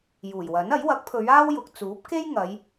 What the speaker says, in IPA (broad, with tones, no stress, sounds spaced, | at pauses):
j uː˨˩ j w ɐ˨˥ n ɐ˨˥ j w ɐ˨˥ k̚ pʰ ɵ˨˧ ɥ aː˥ w j ʊ˨ k̚ t͡s uː˨˥ p̚ k e˥ j ŋ ɐ˨˧ j